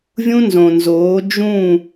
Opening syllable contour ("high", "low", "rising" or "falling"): high